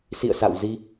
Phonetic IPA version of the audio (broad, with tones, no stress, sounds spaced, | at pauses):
s ḭ˧˨ ə̯ s a̰˧˨ w z i˧